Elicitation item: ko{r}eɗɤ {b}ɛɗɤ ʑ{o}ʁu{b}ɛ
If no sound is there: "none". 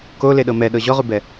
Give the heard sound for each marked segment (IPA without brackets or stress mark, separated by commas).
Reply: l, m, ɔ, b